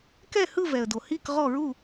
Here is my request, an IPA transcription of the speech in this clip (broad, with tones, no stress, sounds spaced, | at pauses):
k ɛ˥˧ h ɯ˥˧ v ɛ˨ ə̯ d o˨ h i˥˧ k ʁ ɔ˥˧ ɹ u˥˧